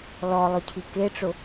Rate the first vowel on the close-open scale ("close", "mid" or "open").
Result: mid